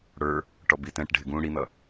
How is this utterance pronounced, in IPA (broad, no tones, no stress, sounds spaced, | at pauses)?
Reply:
ɽ ə˞ | ʈ ɔ b i t ɛ̃ ʈ ɖʱ ɪ ɡ ũ ɽ i n̪ ʌ